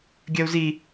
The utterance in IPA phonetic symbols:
ɡʲ ɜ u̯ z i

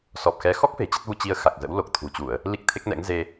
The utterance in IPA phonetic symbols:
s ɔ˨˩ p̚ x ɛ˨˦ x ɔ˦˥ k̚ f e̤˨˩ t͡ɕ ə˦˥ t̚ v u˧ t͡ɕ i˧ ə̯ x a˨˩ k̚ z ə̰˧˥ w l o˨˩ k̚ t̪ʰ ṳ˨˩ t͡ɕ u˧˩˨ ə̯ | l i˦˥ k̚ t̪ʰ e˦˥ k̚ n ɛ̰˧˥ ŋ z e˧

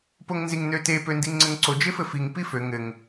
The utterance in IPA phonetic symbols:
p o ŋ n z i ŋ n ø t e p ø n d i ŋ ŋ͡ǀ ɘ ŋ ǀ o d͡ʒ e f ɘ f i ŋ p i f ø ŋ ɘ ŋ

